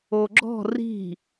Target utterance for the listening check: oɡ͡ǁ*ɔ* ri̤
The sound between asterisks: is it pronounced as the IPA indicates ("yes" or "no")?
no